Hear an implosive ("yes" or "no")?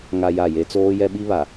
yes